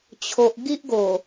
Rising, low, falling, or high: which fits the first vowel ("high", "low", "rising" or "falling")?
low